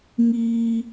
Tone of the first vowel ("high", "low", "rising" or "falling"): high